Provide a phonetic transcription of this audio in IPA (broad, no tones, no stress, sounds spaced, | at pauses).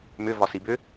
m ʏ v ɒ s i b ʏ